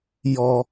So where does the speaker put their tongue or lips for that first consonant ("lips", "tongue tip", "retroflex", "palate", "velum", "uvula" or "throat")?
palate